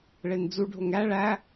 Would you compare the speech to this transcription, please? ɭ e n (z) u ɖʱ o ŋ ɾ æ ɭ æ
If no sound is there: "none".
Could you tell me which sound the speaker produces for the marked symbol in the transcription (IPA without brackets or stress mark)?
d͡z